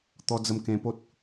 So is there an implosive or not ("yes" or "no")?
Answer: no